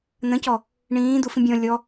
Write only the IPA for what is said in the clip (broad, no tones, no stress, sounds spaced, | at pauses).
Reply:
n̪ ə̃ c ɔ | ɳ ĩː d̪ u f ĩ bʲ ɔ̃ lʲ ɔ